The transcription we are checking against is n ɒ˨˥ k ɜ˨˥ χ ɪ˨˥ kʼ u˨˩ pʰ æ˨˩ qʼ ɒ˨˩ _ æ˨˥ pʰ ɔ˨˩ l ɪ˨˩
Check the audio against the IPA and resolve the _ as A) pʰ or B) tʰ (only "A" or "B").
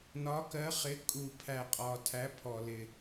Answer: B